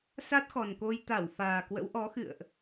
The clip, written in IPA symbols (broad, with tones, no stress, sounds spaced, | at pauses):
s a˦˥ t̚ x ɔ˨˩ n k o˧ j t̪ a˧˩ w f aː˨˩ k w ə̰˧˥ w ʔ ɔ˨˦ x ɨ̰˧˨ ə̯ ʔ